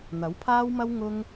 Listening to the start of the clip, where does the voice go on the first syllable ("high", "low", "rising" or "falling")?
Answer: rising